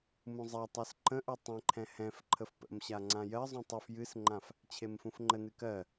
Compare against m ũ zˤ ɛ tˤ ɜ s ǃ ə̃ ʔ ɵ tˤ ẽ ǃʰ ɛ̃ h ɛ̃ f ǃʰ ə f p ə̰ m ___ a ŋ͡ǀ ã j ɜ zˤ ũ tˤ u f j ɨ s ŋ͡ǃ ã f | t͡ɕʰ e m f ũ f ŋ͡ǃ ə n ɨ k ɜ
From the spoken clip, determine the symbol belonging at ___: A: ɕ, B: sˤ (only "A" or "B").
A